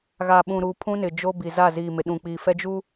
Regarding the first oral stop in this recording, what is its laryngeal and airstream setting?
implosive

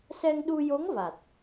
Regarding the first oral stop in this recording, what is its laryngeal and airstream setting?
implosive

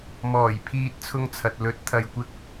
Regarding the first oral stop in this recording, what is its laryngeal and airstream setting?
aspirated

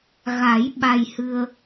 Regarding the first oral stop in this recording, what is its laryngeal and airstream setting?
implosive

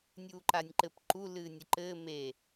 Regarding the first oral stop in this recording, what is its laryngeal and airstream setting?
click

